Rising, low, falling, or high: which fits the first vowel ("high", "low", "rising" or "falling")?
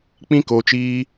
high